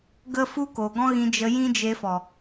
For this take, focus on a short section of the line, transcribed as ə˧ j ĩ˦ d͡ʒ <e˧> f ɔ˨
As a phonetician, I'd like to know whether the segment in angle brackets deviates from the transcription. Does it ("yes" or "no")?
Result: no